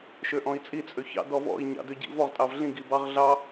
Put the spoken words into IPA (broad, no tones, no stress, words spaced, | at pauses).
ʃøʔɔ̃i̯t͡sʼi t͡sʼøçɑ̰ dɔvɔ̰i̯ ɲɑ̰døɟḭvɔʁ tʼɑvɮĩ ɡibɑʁ ɮɑ